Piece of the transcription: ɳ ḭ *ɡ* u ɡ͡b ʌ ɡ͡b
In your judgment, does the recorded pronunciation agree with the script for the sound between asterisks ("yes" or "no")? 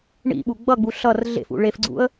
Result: no